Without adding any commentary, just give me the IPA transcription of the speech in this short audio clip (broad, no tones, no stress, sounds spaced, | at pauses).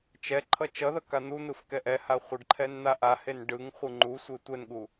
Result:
t͡ʃ ɛ ǃʰ ʌ t͡ʃ ʌ ð ʌ k a n̪ u n̪ ɯ f k ɛ ʔ ɛ h a χʷ ɯ ɖ ǃʰ ɛ n n̪ a ʔ a h e n ɖ ɯ ŋ χʷ ɯ ŋ͡ǃ u sʷ e tʷ ɛ n ɠ u